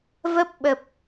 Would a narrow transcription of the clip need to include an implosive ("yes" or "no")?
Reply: yes